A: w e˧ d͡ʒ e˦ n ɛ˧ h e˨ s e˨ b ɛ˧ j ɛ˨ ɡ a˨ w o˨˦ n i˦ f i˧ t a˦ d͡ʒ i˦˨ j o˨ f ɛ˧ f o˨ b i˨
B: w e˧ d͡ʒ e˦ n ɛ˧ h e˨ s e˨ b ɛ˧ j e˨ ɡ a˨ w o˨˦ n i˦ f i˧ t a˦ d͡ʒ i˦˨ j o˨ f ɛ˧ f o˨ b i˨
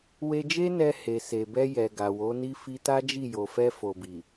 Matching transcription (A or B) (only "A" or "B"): A